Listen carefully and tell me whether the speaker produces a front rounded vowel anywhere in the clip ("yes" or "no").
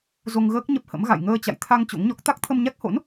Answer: no